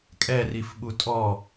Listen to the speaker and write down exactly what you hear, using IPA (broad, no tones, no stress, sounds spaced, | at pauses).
kʼ ɛ r i f ɓ u tʼ ɔ